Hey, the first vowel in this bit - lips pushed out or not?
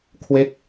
no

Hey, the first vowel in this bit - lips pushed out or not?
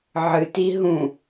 no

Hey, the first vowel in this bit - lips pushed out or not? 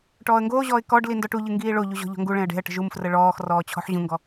yes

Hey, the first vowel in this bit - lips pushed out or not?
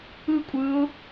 no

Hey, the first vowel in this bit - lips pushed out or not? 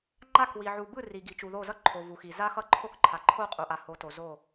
no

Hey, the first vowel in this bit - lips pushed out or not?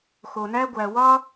yes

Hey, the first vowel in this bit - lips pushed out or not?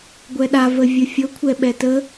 no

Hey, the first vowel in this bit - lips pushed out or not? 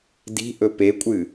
no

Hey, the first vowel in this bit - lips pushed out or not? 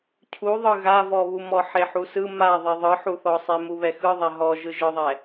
yes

